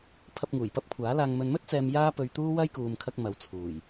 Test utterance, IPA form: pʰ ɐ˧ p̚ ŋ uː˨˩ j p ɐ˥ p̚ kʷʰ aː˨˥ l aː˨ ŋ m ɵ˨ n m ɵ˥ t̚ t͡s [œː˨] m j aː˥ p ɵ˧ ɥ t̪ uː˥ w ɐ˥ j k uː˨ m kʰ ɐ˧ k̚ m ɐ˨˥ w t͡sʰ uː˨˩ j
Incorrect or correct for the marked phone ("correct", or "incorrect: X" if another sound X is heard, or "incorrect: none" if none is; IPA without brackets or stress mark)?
incorrect: ɛː˨